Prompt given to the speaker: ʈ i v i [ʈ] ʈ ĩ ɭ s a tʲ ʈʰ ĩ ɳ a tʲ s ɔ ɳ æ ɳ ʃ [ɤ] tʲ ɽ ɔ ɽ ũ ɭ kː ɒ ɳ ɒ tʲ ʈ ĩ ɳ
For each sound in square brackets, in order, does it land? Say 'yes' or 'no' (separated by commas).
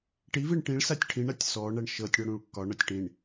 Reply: no, yes